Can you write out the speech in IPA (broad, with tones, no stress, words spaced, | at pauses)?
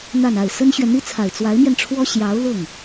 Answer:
n̪a˥˧na˥˩ɪ̯ sə˥nɕɥɛ˨ n̪i˥t͡sʰa˨˩ɪ̯ t͡swa˧˥ɪ̯mjɛ˧nʈ͡ʂʰwɔ˥ ɕjɑ˧˥ʊ̯lʊ˥˩ŋ